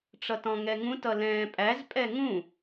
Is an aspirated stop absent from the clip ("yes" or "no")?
yes